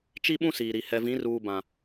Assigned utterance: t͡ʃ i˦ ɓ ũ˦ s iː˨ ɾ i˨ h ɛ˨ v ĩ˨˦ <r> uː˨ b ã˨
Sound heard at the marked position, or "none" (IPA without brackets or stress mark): r